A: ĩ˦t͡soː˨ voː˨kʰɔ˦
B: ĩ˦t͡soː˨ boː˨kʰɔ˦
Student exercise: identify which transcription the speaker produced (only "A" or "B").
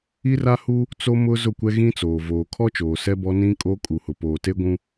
A